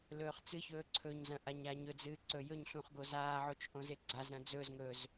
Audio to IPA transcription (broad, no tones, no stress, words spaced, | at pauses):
lɵːχt͡sɨçɵː ǀʰɵɲzɐ̃ ʔaɲaɲɵd͡zɨː ǀɵjɵɲɬũχ ɡozaːʕot͡ʃ ʔõzeɡ͡ǀazɾɐ̃ d͡zɵːzŋɵːz